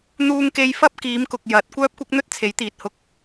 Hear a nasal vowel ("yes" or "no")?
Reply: no